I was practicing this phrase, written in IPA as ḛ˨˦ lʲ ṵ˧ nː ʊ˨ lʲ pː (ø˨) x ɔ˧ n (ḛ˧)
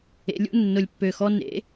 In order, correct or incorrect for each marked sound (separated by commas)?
correct, incorrect